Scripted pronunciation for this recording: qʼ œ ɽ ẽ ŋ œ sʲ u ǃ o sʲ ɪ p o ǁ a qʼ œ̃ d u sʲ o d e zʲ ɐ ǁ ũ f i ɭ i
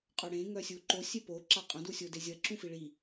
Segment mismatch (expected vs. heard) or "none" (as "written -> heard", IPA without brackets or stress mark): none